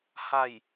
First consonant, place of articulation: glottal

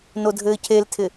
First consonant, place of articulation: alveolar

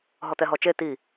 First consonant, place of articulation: glottal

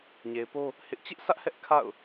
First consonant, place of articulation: palatal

